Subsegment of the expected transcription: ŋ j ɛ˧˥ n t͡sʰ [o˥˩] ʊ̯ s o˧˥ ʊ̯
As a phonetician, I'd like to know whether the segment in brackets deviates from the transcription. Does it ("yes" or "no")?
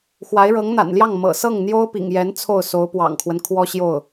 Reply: no